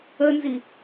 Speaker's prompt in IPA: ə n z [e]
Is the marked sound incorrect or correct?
incorrect